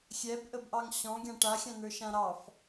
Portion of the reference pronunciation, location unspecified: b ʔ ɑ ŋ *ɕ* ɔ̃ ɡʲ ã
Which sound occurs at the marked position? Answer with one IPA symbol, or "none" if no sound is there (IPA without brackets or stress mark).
ɕ